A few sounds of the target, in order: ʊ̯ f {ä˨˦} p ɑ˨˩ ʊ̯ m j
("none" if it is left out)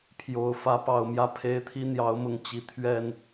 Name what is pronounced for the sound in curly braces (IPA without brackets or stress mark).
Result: ä˨˦